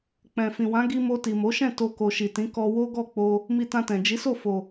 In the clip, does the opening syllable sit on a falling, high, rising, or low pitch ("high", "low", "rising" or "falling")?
low